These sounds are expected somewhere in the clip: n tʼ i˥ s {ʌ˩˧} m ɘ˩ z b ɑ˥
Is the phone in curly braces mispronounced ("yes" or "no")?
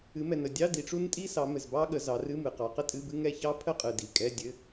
yes